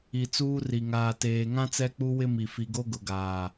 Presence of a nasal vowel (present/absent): present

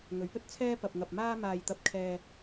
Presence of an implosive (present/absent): absent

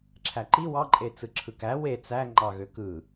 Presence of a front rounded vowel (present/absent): present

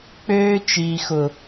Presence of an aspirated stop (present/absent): absent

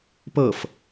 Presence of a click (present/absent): absent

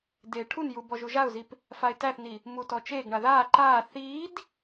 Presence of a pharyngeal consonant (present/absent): absent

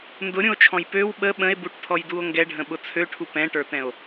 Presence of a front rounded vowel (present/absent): present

